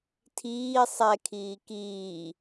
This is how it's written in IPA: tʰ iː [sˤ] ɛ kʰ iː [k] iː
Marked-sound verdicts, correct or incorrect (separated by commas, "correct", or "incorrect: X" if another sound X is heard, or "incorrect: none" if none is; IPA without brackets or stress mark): correct, correct